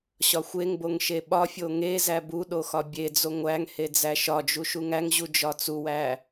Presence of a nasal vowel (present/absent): absent